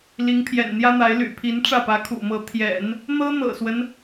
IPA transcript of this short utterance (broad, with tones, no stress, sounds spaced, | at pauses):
l i˧˥ ŋ pʰ j ɛ̰˨˩ n n̪ j ä˥ n̪ a˧˥ ɪ̯ l y̰˨˩ pʰ i˧˥ n ʈ͡ʂ ä˥˩ p ä˧˥ kʰ ṵ˨˩ m ɤ˧˥ t̪ʰ j ɛ̰˨˩˦ n | n̪ ɤ˥ n̪ ɤ̰˨˩ s w ə˦ n